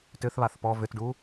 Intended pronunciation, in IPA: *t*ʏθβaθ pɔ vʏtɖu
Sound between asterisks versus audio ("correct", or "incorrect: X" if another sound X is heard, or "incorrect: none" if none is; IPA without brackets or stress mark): correct